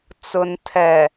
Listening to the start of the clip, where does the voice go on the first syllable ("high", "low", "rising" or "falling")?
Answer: low